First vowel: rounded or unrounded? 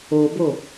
rounded